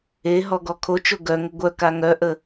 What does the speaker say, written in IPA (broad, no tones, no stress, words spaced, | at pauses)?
eɦɔ ɡɔkʰot͡ʃo ɡœŋə ɡʷœka ŋœʔə